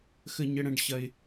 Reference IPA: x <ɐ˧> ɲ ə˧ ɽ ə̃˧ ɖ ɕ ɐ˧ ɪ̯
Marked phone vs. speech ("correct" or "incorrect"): incorrect